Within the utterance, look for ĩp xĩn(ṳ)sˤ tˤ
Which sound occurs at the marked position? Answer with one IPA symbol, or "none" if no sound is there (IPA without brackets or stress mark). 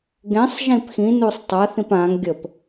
u